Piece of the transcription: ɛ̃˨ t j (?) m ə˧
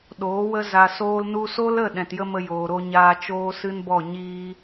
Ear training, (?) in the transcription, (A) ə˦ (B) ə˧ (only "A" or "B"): A